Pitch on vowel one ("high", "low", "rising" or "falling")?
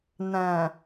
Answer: low